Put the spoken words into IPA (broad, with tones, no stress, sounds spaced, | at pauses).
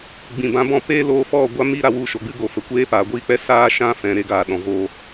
ɡ͡b ĩ˨ b ã˧ b ɔ̃˦˨ p eː˦ l oː˧ f ɔ˦˨ ɡʷ a˦ m i˦ ɾ a˨ w u˦˨ ʃ o˨ ɡ͡b ɨ˦ ɡ o˨ f ə˨ kʷ eː˦ p aː˨ ɡʷ iː˦ k͡p ɛ˦ s aː˦ ʃ ã˦ f ɛ̃˨ ɾ e˧ ɡ aː˨ ɗ ɔ̃˨ v oː˧